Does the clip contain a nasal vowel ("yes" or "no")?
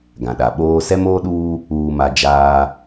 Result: yes